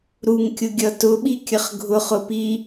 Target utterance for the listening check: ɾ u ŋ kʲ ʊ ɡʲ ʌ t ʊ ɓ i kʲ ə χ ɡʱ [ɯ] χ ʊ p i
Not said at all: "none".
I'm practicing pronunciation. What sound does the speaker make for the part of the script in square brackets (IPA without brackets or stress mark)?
ʊ